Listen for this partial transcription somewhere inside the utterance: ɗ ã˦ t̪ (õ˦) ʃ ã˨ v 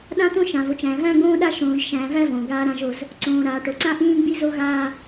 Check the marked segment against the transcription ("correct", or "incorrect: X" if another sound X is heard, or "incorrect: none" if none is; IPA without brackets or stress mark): correct